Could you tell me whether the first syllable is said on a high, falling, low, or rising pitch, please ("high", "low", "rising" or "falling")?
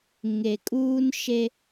low